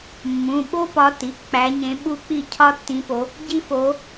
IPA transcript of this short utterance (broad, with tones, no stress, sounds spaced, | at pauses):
mː ũ˩˧˩ ɓ o˦ p ɒ˨˦ t i˩˧˩ k͡p æ˨˦ ɲ ẽ˨˦ ɓ u˦ k͡p i˥˩ cʰ ɒ˦ tː ĩ˨˦ p o˨˦ | ɟ i˦ f o˨˦